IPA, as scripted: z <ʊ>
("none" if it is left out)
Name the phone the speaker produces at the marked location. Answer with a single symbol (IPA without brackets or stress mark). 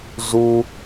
u